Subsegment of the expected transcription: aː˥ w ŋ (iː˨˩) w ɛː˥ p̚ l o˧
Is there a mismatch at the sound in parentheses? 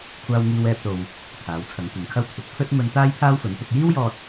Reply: yes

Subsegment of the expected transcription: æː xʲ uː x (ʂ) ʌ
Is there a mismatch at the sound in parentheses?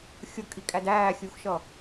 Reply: yes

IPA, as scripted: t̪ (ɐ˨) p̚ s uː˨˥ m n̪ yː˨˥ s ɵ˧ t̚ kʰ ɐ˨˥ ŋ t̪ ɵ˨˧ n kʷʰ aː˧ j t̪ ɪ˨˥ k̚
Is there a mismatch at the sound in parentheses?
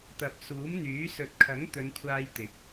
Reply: no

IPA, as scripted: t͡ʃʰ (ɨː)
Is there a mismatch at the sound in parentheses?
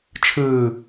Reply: no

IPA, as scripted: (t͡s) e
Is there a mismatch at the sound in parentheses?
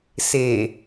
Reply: yes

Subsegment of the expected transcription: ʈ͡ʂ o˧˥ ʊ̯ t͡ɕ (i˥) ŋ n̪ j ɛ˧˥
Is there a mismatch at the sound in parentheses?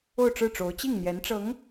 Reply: yes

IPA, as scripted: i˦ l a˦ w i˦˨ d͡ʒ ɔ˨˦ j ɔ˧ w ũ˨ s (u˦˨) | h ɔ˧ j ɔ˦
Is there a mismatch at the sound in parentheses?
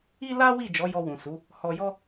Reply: yes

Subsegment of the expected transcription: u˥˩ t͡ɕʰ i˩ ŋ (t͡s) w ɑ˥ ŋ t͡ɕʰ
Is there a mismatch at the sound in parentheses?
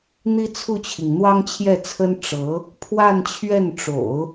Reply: yes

